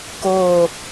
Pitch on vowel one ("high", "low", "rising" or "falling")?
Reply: low